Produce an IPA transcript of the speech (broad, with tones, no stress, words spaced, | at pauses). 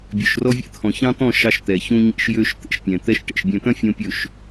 bʲø˨ʃrɔ˦ vʲḛ˦t̪ʰɔ̃˨ çɑ̃˦t̪ɔ̃˦˨ ʃɑ˦ʃ t̪ɛ˨ çũ˦ɲḛ˦ʃjø˦ʃt̪ḛ˦ʃ pʲɛ̃˨ t̪ɛ˦ʃʈḛ˨ʃ bʲœ̃˨t̪œ̃˦ fʲõ˦pʲɵ˦˨ʃ